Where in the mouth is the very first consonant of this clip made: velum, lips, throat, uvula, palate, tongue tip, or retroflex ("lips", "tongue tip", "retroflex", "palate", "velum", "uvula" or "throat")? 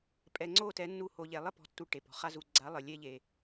lips